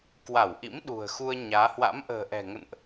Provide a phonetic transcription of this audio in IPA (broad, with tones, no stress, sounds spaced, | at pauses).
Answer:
k w a˧˩ w ʔ ḭ˧˥ m ɗ ṳ˨˩ ə̯ x u˧ ə̯ ɲ aː˨˦ h w a̰˧˥ m ʔ ə̤ː˨˩ ʔ ɛ̤˨˩ ŋ ə̰˧˨ n ʔ